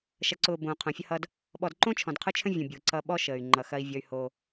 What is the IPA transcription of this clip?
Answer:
ʃ ɐ˨ ǀ ʊː˨ b õː˨ qʰ õ˨ fʲ ə˦ h ʌ˦ d | ɓ ɔ˨ d ǃ õ˦ t͡ʃʰ ɔ̃˨ d qʰ ʊ˦ t͡ʃʰ ə̃˦ vʲ õ˨ bʲ ʊː˨ ǀ ʌ˦ ɓ ɔ˦ ʃ əː˨ y̯ ŋ͡ǃ ʌ˨ x ɐ˦ i̯ vʲ ʌ˦ y̯ h o˦

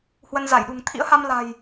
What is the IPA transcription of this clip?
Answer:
h w ə˧ n z a˧˩ j ɗ ṳ˨˩ ŋ t̪ʰ ḭ˧˥ ə̯ h a˧ m l a̤˨˩ j

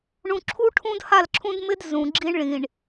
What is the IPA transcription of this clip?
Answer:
ɳ ũ˨ ǁʰ u˦ ʈʰ ũ˦ d h a˦˨ l ǁʰ ũ˦ d m ɪ˦ d z ũ˨ ɡ͡ǁ i˦ ɳ ɭ ĩ˨ ɳ

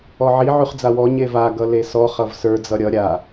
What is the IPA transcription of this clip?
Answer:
ɔ ʕ i ʕ ʉ χ d͡z a w ɔ ɲ e v a ɡ ʌ l e s ɔ χ ʌ v s ə˞ d͡z ʌ ɾʲ ʌ ɾʲ a

